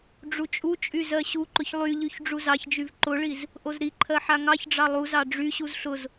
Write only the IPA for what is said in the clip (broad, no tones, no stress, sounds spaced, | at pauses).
ɖ͡ʐ u t͡ʃʼ u t͡ʃʼ y z ɜ ɕ u ǃ ʊ ç lˠ y ʎ y ç ɖ͡ʐ u z ɑ ç d͡ʒ y v ǃ ʊ ɭ i z | ʔ o z ɾ i ǃʰ ɜ ħ a ŋ ɑ ç ɖ͡ʐ ɑ lˠ u z ɑ ɖ͡ʐ y ɕ u z ɬ ʊ z